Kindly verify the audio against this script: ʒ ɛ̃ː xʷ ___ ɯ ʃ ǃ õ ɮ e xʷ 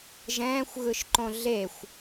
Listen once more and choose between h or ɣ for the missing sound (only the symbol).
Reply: ɣ